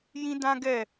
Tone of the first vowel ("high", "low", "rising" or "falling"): high